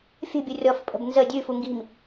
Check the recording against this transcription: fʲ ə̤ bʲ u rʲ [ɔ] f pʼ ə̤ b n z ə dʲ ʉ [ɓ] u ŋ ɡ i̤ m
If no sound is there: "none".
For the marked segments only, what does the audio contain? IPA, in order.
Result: ɔ, f

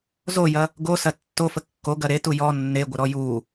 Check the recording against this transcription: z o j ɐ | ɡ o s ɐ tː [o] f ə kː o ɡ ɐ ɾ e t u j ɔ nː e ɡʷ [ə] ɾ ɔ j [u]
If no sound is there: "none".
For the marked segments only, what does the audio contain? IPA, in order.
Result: o, ə, u

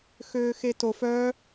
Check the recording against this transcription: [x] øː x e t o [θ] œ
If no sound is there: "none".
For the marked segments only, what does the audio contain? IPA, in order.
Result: x, f

